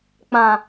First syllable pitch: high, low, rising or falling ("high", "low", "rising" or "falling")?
low